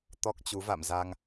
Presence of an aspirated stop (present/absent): absent